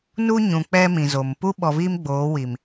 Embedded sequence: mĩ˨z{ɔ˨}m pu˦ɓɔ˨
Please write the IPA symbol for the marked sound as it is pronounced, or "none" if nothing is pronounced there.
o˨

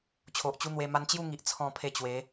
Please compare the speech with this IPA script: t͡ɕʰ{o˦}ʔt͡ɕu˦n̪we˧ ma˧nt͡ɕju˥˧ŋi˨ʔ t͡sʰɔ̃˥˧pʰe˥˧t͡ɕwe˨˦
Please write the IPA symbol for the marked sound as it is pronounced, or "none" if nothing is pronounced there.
o˨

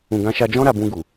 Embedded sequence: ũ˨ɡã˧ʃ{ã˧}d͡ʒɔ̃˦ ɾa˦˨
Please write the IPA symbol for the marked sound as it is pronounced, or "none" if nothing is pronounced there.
a˧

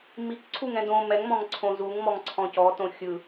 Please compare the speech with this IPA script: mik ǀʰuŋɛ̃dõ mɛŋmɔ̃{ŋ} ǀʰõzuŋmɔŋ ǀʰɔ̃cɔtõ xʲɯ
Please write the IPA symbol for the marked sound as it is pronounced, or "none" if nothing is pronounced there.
ŋ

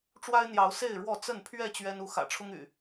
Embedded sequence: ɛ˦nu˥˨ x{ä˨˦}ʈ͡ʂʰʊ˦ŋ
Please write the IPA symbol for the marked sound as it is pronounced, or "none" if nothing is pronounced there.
ä̰˨˩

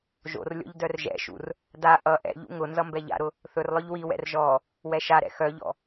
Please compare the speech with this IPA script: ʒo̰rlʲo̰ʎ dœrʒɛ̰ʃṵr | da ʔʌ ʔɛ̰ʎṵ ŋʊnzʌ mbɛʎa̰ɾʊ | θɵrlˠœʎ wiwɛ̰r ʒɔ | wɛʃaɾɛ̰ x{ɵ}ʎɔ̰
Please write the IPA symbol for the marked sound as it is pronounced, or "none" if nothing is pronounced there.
œ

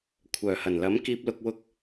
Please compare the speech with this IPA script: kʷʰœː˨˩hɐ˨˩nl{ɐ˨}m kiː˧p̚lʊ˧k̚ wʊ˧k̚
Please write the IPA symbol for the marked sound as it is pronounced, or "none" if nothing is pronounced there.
ɐ˨˥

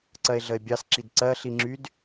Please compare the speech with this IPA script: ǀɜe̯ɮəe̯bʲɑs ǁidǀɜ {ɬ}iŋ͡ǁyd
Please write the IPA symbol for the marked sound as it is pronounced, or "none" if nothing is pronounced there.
ɬ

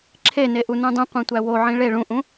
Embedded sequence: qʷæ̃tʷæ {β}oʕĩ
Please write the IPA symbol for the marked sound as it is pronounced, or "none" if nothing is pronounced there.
w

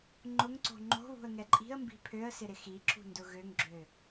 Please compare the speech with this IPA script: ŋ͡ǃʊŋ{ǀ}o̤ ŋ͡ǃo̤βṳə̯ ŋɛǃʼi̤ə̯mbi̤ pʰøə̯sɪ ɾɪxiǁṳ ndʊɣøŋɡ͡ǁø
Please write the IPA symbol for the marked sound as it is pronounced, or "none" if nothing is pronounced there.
ǀ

